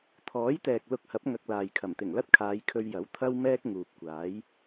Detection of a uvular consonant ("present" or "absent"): absent